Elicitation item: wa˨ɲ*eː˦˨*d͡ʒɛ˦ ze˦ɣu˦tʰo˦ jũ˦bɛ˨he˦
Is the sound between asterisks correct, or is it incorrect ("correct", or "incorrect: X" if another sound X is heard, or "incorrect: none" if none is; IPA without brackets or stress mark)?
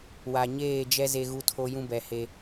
correct